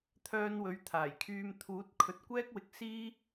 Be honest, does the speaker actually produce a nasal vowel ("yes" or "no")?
no